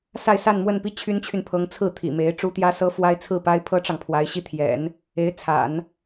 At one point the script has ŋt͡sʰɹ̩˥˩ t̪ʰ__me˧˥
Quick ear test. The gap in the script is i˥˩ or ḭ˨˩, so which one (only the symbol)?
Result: ḭ˨˩